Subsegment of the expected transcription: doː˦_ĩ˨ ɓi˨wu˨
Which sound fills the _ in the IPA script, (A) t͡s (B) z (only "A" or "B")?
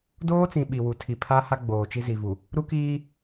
A